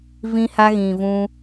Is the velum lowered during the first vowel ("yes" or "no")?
yes